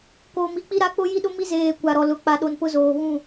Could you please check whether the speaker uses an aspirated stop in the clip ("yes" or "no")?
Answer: no